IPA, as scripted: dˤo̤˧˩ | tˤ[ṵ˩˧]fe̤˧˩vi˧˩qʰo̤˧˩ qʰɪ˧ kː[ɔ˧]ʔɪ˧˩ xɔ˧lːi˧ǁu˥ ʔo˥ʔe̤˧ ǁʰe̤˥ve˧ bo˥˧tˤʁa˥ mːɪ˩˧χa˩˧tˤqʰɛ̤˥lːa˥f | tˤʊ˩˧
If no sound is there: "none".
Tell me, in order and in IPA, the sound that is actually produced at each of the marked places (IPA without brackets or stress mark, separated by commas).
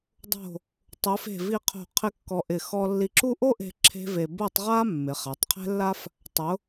u˩˧, ɔ˧